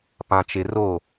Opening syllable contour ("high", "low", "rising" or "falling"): low